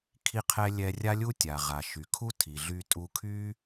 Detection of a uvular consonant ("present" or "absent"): present